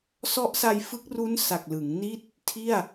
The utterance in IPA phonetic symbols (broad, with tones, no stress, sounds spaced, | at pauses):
s ɔ˦˥ ʔ s a˧ j f ɯ˦˥ k̚ r u˦˥ n s a˨˩ k̚ l ɯ˩˦ ŋ n i˥˩ t̚ | tʰ i˥˩ a̯